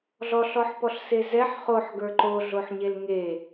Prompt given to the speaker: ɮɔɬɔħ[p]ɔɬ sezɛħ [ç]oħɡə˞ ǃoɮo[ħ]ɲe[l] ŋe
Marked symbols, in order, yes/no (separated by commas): yes, no, yes, yes